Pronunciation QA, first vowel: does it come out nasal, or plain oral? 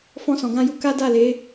nasal